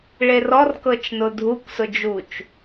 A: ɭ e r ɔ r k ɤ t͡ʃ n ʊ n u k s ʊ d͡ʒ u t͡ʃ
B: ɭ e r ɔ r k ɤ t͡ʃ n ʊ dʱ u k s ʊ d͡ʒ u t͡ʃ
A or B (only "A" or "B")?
B